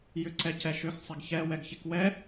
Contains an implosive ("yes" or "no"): no